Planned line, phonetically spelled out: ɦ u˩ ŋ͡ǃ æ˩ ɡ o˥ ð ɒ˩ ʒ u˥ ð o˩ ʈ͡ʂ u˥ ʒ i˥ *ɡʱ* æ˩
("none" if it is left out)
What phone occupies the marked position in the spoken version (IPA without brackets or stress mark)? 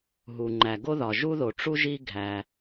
ɡʱ